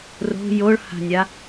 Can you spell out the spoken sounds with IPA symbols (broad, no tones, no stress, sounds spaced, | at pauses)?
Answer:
r o̤ j o ɭ h a̤ nʲ a